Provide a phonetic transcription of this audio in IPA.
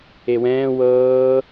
ewɛ̃ː wɤː

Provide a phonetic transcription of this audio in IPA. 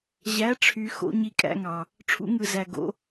ʑæ˨˦ʈ͡ʂʰy˨ xo̰˨˦ɲi˨˦ kʼæ̰˨˦ŋɑ˨ | ʈ͡ʂʰṵ˨˦ŋɯ˨ zæ˨ɡo̰˨˦

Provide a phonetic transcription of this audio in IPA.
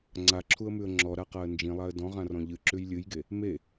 ŋ͡ǀaǁʰuə̯mʉə̯ ŋ͡ǁɔɾaqaə̯ nd͡ʒĩlˠaə̯ dɔ̃ʁãrɔ̃ ʎɨǁʉj lʲɨjɡe | me

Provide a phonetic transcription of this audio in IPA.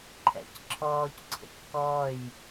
ǃʰɛ̰cǁʰɔːcǀʰə̰c kɔj

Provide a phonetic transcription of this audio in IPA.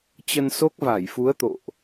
t͡ɕə˧nso˦˥k̚va˧˩jfu˨˦ə̯ t̪o̰˧˨ʔ

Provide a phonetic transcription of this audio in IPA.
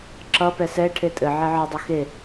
ǁʌ pɛsɛ ʈʰetʼɘ ʕɛʕɪ dˤøxe

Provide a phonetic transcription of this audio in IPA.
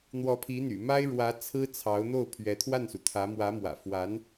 n̪wɔ˧˥pʰi˧˥n̪y̰˨˩ma˥ɪ̯ ɻwä˧˥ t͡sʰɹ̩˥t͡sʰɑ˧˥ʊ̯n̪o˥˩ʊ̯ pʰɥɛ˧˥t̪ʰwa˥˩nsu˩t̪ʰä˧˥ mwä˧˥mwä̰˨˩fwa˧˥n

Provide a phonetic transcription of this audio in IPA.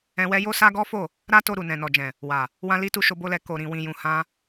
ɛ̃˧wɛ˦ jo˦sa˦ɡɔ˦fo˦˨ | ɾa˦to˧ ɾu˨nɛ̃˨nɔ˨d͡ʒɛ̃˨ | wa˨ | wã˦li˦tu˦ ʃo˧bo˧lɛ˧ ko˨ɾĩ˨wĩ˨jũ˨ hã˧

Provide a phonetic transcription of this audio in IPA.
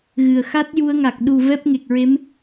ɣɨ˨˩ə̯ xa˦˥t̚ju˧ə̯ŋa˨˩k̚ ɗu˨˩ vɛ˦˥p̚ŋe˨˩k̚ɹe˧˥m

